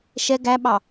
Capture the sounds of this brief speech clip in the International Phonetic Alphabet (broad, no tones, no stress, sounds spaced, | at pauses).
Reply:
ʃ ɛ ɡ æ ɓ ɑ